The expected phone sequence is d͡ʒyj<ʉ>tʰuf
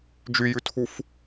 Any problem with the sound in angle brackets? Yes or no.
no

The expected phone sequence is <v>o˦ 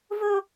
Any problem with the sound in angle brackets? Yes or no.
no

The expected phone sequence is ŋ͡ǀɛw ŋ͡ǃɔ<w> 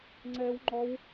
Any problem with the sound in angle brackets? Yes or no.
no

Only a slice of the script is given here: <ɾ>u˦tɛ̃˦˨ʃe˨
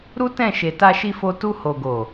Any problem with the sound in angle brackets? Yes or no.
no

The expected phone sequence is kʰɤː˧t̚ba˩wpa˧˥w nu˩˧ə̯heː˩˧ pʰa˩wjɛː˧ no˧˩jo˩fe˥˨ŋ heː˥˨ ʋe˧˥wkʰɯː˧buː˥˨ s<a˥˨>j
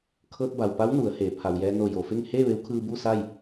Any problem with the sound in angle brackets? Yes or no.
no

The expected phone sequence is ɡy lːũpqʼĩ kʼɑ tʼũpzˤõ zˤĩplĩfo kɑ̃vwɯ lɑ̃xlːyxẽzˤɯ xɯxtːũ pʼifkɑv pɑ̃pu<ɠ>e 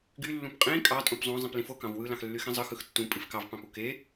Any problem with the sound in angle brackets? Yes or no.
yes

